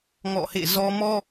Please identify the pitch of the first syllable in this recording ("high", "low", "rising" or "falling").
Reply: falling